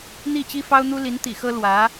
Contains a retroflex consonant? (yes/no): no